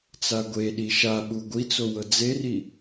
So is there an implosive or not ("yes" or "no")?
yes